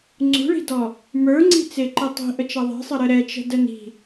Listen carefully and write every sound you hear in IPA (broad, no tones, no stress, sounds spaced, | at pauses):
ŋ͡ǀ ṳ ɭ i̤ d ɔ | m ə˞ ŋ͡ǀ i̤ t͡s ɪ ǃ i tˤ i̤ ʔ ə t͡ʃ ʌ ðˤ i̤ sˤ ə ɾ ə ɾ ɛ t͡ʃ ə̤ d ə n i̤